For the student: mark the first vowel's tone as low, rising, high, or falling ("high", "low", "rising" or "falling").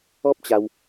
high